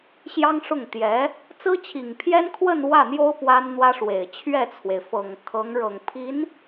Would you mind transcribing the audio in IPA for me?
ɕ j ɑ˥ ŋ ʂ ʊ˥˩ ŋ t̪ j ɛ˧˥ | t͡s ɹ̩˥ t͡ɕʰ i˨˩ ŋ pʰ j ɛ˥ n kʰ w ə˥˧ n w ä˥˩ n̪ j o˥ ʊ̯ p w a˥ n n̪ w ä˥ ʂ w e˨˩ ɪ̯ t͡ɕʰ ɥ ɛ˥˩ t͡sʰ w e˩ ɪ̯ f ɤ˨˩ ŋ kʰ ɤ˧˥ ŋ ɻ ɤ˨˩ ŋ pʰ i˧˥ n

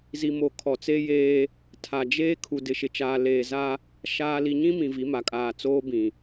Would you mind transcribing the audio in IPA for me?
z i˨ m o˨ kʰ ɔ˨ t͡s e˦ j eː˦ | tʰ a˨ d͡ʒ eː˦ kʰ u˨ d ɪ˨ ʃ ɪ˨ t͡ʃ aː˨ l eː˨ z a˦ | ʃ aː˨ l i˨ ɲ ĩ˦ m ĩ˨ v i˨˦ m a˨ kʼ aː˨ t͡s oː˦ b ĩ˨

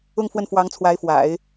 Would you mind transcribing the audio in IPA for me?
ʊ˥˧ ŋ f w ə˥˩ n f w ɑ˧˥ ŋ t͡sʰ w a˧˥ ɪ̯ f w a̰˨˩˦ ɪ̯

